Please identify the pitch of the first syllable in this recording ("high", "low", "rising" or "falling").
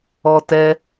high